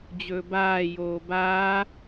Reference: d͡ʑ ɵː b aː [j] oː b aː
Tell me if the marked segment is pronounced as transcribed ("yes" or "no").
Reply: yes